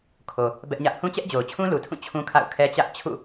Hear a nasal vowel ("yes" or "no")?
yes